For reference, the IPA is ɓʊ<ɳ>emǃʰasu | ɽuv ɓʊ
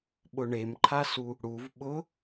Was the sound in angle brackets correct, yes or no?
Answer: yes